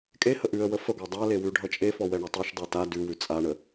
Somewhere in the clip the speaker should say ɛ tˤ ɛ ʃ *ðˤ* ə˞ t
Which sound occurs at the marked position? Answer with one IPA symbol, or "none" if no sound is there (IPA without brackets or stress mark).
dˤ